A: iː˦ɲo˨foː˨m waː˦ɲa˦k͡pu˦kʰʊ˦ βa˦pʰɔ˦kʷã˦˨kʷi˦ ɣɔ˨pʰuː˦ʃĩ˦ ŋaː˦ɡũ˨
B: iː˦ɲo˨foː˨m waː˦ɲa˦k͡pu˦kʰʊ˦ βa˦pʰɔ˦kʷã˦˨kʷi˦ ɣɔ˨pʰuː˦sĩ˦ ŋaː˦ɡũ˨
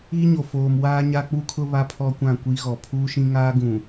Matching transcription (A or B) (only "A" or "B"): A